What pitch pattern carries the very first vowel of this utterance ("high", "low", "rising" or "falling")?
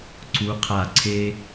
rising